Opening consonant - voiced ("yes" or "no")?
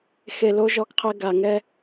no